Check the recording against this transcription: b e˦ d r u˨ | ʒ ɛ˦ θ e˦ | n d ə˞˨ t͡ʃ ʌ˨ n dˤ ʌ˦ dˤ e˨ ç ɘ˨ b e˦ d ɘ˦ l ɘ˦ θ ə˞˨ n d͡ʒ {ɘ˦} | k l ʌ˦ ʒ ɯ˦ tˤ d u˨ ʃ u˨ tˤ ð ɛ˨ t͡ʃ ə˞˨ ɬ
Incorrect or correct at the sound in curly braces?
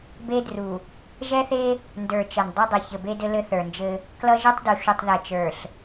correct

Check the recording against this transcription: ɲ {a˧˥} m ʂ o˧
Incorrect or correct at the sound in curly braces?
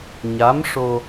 correct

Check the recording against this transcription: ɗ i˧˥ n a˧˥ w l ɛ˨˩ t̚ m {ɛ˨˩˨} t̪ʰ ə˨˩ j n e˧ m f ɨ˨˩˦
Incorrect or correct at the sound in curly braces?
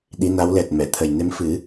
correct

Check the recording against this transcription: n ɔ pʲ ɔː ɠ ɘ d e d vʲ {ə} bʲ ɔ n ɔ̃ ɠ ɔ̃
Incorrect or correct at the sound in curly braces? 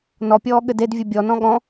incorrect: ɨ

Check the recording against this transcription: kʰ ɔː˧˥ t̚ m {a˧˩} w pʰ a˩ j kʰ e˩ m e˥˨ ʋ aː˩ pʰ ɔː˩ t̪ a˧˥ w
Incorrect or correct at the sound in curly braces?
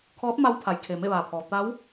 incorrect: a˧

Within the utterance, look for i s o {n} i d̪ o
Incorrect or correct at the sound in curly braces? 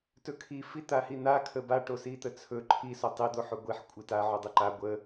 incorrect: tˤ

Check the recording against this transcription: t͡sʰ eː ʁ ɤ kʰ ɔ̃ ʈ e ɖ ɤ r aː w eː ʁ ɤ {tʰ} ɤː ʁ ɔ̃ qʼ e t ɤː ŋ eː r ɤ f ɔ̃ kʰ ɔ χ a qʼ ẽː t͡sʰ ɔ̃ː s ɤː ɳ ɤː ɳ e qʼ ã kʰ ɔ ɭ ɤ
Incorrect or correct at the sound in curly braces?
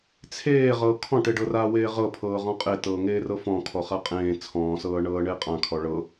incorrect: pʰ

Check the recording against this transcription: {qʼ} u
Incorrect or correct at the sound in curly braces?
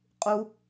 correct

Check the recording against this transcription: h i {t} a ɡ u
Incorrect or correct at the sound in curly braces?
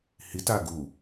correct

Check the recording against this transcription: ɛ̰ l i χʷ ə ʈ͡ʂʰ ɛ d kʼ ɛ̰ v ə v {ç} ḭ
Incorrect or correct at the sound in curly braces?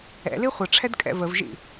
incorrect: ʒ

